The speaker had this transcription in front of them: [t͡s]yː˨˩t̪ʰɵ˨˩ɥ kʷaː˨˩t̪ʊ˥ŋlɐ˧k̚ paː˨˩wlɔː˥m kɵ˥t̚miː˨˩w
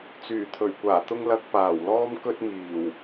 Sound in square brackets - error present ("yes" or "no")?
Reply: no